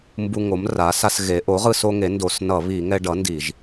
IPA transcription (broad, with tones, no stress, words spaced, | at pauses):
mbu˧ŋo˩˥mra˩˥sa˧s ɣe˩˥ ʔo˩˥ʁɯ˧so˧ ŋe˩˥ndo˧˩˧s nʌ˧˩˧βi˧˩˧ ŋɛ˧ ɖʌ˩˥ ndi˧˩˧ʒ